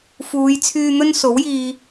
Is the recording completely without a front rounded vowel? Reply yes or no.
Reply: no